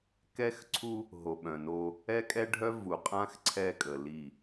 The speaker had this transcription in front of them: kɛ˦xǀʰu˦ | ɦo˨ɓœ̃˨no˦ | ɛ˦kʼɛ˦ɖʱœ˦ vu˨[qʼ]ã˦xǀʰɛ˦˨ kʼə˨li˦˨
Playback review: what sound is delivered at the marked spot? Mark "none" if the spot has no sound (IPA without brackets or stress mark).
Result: qʼ